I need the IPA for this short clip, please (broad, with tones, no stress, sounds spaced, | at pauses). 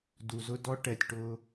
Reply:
d u˨ z ʊ˦ d ɔ˦ ʈ ɛ˨ tʲ ʈ ʊ˦